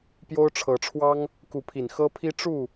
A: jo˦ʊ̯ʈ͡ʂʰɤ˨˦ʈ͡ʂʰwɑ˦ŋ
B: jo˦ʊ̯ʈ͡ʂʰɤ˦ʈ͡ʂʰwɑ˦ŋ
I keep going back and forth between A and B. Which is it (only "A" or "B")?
A